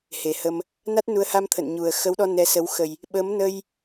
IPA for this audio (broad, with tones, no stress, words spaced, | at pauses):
he˨˩hə˧m | na˦˥t̚nu˨˦ə̯ha˧m t̪ʰə̰˧˨nɲu˨˩ə̯ xə˨˦wɗɔ˧ nɛ˧sə˨˦w xə˨˩j | ɓə˨˦mnə˧j